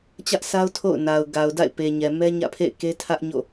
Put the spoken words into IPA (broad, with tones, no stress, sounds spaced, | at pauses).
t͡ɕ ä˦ ʔ s a˦ ʊ̯ tʰ o̰˦˨ ʊ̯ n a˨ ʊ̯ ɡ a˨ ʊ̯ d a̰˦˨ ɪ̯ p e˨ ɲ ɛ˨ m ɛ˦ ɲ ä̰˦˨ pʰ ḛ˦˨ ɪ̯ k e˦ tʰ ä˦ ʔ ɲ o̰˦˨